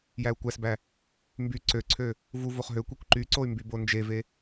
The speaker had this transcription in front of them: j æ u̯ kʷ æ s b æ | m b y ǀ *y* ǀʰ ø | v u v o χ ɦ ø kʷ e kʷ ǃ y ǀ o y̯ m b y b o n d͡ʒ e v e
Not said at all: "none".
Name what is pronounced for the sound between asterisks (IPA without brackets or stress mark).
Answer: ø